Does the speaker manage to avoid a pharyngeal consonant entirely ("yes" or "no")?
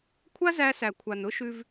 yes